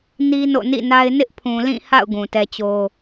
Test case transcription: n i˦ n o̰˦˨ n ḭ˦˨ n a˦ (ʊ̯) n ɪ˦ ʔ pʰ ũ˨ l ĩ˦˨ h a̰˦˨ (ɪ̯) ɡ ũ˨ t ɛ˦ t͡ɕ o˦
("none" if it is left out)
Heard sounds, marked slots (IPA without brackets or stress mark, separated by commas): ɪ̯, ʊ̯